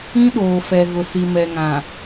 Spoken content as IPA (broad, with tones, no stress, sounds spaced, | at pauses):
ĩ˦ ɗ oː˨ f ɛ˨ ɣ ʊ˨ s i˨ m ɛ˨ ŋ ã˨